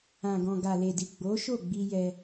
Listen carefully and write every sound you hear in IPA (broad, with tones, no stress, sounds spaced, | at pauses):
ã˨ ɡ ɔ̃˨ ɡ a˨ l e˨ d i˨ ɡ͡b o˨˦ ʃ o˦˨ ɡ͡b i˧ j ɛ˧